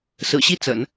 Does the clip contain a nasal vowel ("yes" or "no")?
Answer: no